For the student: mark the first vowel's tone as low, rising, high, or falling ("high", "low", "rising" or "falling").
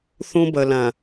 high